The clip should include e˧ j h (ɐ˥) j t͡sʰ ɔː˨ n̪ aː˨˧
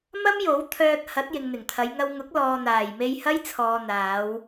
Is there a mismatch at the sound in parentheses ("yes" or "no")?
no